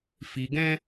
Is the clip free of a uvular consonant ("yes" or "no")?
yes